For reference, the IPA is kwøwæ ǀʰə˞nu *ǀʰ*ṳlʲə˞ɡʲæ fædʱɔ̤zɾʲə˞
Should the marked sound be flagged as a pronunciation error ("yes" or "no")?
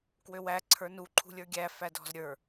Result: yes